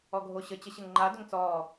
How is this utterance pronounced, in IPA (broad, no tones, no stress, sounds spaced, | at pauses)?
ɔ ɡʱ o ɕ ə t͡ɕ ə ɕ ɘ ŋ ŋ͡ǃ a d ʏ ŋ t͡s ɔː